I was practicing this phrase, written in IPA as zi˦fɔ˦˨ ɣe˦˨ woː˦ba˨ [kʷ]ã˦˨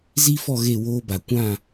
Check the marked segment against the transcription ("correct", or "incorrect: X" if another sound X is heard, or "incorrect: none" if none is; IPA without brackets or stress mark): correct